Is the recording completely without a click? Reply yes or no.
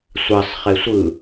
yes